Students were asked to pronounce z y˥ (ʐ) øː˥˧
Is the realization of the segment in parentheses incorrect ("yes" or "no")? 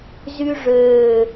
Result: no